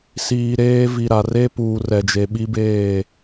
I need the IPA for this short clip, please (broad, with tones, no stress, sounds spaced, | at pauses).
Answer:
s iː˨ ɾ eː˦ v i˨ ɾ a˨ r e˦ p uː˨ r ɛ˨ d͡ʒ e˨ ɓ i˦ b eː˦˨